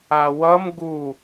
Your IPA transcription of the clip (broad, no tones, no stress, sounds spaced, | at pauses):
a w ʌ m ɡ u